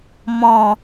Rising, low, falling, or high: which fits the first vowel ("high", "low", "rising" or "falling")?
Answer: low